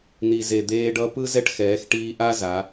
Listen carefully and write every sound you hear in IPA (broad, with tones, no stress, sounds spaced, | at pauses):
n̪ i˩ z e˩ d̪ eː˧ ɖ ʌ˧˥ p ɯ˥ z ɛ˥ ʈ x ɛː˩˧ x ʈ iː˧ ʔ a˥ z a˩˧